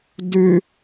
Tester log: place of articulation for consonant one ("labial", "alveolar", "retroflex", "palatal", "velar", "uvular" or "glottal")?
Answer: alveolar